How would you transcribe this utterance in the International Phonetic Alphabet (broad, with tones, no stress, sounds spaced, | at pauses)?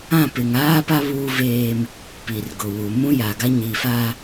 ã˦˨ p ɪ˨ ŋ aː˦ p a˦ β uː˦ v eː˦ m | p i˨ r ɡ ʊ˨ w u˨ m ũ˦ j a˨ ɡ a˦ ɲ i˨ f a˦